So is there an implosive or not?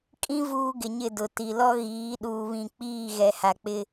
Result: yes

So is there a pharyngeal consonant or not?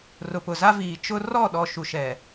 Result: no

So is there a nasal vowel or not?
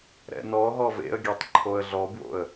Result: no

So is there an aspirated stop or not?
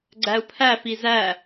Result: yes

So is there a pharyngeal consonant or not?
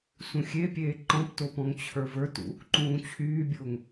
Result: no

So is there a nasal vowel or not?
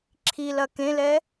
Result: yes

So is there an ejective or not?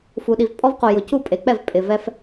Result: yes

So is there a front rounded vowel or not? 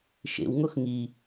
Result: no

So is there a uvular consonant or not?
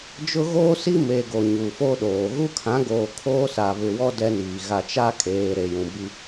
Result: no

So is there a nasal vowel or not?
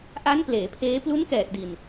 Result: no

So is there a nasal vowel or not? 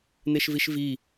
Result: no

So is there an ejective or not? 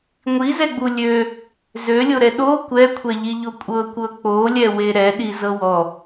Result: yes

